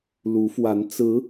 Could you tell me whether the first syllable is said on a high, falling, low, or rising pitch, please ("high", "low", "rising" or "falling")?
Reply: rising